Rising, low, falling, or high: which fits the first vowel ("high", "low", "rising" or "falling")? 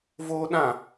high